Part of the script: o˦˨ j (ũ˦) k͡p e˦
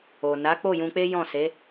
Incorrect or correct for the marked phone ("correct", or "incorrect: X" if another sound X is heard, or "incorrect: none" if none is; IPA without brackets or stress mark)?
incorrect: ũ˧